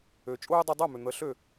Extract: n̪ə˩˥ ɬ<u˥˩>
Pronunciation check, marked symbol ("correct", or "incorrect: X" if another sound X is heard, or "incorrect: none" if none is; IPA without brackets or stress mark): incorrect: ø˥˩